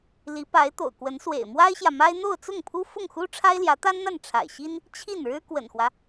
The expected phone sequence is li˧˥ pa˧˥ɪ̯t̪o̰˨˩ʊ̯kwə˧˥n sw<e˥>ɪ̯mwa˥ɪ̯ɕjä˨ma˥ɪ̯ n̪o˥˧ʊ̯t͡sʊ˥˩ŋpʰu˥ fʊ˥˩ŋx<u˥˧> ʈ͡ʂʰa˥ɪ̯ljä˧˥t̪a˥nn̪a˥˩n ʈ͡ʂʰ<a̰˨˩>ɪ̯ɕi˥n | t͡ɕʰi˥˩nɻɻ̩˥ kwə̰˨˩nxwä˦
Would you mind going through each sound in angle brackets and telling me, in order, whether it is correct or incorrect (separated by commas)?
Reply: incorrect, incorrect, correct